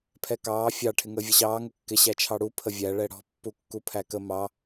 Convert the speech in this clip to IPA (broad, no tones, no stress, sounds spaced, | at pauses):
pʰ ɛ k ɑː fʲ ɑ ʈʰ ɪ ŋ əː vʲ ʌ ɕ ɑː ŋ ə kː ɪ ɕ æ t͡ʃʰ ɑ ɽ u pʰ ə vʲ æ ɭ ɛ ɽ ɔ̤ pː u kː u pʰ æ k ə m ɑ